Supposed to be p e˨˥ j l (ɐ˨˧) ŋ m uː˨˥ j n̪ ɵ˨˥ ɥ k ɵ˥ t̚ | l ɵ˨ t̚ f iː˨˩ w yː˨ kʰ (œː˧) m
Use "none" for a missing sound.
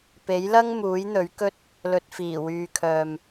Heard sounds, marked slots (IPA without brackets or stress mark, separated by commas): ɐ˥, œː˨